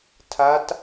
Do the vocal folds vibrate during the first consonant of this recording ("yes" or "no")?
no